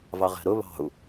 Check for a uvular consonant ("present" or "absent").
present